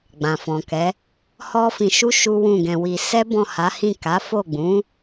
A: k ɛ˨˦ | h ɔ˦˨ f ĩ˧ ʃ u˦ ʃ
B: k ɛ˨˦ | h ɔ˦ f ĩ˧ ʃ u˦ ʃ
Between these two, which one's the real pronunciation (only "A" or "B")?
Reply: B